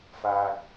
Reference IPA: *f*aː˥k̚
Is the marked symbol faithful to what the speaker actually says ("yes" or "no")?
yes